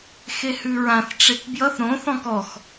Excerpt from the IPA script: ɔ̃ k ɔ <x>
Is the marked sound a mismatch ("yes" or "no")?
no